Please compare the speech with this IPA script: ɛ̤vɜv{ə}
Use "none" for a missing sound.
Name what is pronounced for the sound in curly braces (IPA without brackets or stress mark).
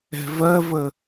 ə